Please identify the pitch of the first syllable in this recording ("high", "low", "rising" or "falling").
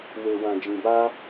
low